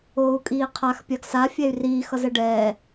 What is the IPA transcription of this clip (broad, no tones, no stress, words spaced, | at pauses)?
oːu̯kʼiːqʰax pʲaɡsa fʲɛy̯riː xʌzɛɖɛː